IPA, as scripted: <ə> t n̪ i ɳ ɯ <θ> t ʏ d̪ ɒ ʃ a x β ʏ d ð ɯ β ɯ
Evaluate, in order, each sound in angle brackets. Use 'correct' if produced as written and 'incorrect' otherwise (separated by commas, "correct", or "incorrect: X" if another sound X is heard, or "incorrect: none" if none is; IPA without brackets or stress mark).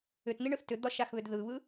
incorrect: ʏ, correct